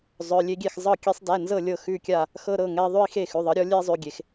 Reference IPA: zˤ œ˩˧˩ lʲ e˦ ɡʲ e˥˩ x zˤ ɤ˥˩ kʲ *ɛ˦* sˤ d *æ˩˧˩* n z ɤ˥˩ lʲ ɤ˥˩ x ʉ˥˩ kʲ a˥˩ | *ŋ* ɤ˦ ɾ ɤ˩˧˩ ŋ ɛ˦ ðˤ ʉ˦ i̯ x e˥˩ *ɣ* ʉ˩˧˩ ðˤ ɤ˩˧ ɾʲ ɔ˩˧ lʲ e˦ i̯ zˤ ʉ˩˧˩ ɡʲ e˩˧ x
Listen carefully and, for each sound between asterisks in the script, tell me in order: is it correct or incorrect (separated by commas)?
correct, correct, incorrect, incorrect